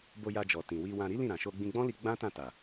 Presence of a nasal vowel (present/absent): present